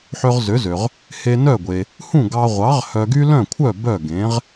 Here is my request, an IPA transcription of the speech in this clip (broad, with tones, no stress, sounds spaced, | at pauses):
ħ ø˧ ʁ z ø˩˥ z ø˩ ʁ | h e˧ n œ˥˩ ɡʷ e˩ | h ũ˥˩ ɡ ɑ˧ ʁʷ ɑ˩˥ ʁ h œ˧ ɡ y˥ l œ̃˥˩ kʷʰ œ˥˩ b œ˥˩ ɡ ẽ˩˥ ʁ